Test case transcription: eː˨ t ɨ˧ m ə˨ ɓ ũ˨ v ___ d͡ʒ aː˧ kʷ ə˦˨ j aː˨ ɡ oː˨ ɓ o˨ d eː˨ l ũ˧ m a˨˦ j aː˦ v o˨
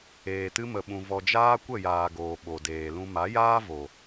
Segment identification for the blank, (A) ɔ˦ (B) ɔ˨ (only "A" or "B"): B